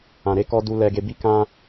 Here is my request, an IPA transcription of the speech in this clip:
ã˨ɾe˧kɔ˧ du˧lɛ˧ɡe˧ bi˦kã˦

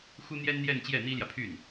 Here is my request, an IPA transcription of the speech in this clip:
xu˥n̪jɛ˥nn̪jɛ˥˧n t͡ɕjɛ˥˩n̪i˥ljä˨pʰy˥˩n

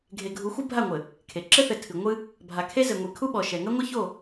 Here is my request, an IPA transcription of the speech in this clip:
ɡʱe˨ɡʱu˨˦ xʷɨ˦bʱa˦˨ŋʷɘ˨ | kʰe˨ ǁɘ˦θɘ˨ tʰɨ˨ ŋʷɨ˦ | bʱa˨kʰe˦ zɘ˨ŋʷi˨ kʰu˦ɓɔ˨ʃɛ˨ ŋɐ˦ŋʷɐ˦ço˦˨

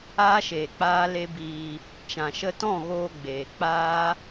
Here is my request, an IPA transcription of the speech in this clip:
aː˦ʃeː˨ k͡paː˦le˦biː˧ | t͡ʃã˨ʃə˧tɔ̃˦˨ɣoː˧ ɡ͡beː˨k͡paː˦

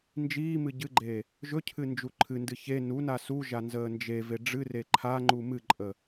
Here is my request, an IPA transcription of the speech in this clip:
nd͡ʒiːmɨ ɟɨɡ͡ǃe | ʒɵcʰɨ nd͡ʒuǃʰɨndɨ çe nuna suʒa nzəːnd͡ʒeve ɖ͡ʐɨre ǃʰaŋ͡ǃu mɨǃʼə

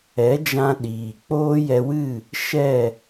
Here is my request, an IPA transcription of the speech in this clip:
ɛ˨˦d͡ʒã˧ ɗiː˨ k͡poː˦jɛ˧wɨ˦˨ | ʃɛ˦˨

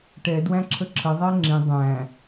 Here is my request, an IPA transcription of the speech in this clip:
ʈɛ dwæ̃ǁʰəǁʰə ðˤæŋ͡ǁĩ dˤæ̃

